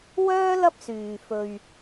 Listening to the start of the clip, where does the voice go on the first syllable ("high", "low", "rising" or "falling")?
high